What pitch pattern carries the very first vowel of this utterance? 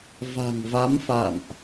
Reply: low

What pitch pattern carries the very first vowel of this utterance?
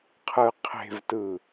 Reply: low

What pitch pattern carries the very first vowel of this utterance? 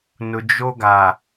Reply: low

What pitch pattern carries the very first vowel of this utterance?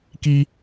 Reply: high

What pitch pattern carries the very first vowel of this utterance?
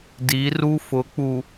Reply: rising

